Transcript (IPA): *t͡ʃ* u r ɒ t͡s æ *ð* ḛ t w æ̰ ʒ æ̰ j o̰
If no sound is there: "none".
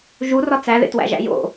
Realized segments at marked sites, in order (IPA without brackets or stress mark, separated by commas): ʒ, ð